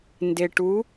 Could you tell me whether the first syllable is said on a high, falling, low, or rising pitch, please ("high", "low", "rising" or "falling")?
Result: low